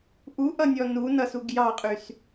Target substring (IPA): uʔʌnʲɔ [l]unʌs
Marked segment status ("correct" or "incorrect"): incorrect